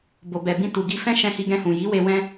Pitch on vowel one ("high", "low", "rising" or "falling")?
low